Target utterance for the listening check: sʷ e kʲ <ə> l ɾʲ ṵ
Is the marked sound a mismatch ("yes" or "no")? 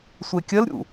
no